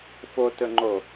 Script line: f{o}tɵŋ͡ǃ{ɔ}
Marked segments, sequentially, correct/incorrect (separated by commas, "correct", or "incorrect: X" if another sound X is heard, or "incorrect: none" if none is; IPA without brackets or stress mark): correct, incorrect: o